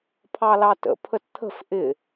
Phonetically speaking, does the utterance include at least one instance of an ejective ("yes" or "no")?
no